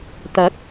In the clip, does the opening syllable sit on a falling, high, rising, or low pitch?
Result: rising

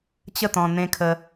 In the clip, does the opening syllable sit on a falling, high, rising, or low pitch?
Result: falling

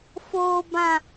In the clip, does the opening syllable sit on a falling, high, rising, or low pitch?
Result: high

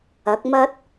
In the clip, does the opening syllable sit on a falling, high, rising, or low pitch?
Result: rising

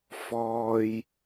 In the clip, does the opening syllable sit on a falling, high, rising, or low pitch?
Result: low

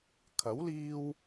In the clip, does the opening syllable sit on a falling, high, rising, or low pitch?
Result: rising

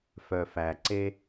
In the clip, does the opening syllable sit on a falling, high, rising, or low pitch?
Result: low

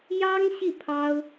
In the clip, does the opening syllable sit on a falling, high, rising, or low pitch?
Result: high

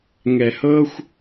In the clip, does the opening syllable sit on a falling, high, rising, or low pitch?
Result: low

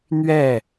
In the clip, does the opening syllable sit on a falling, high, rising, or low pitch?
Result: falling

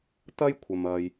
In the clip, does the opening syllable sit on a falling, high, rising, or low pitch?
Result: high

